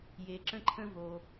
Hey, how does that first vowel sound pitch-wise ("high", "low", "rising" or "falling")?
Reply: low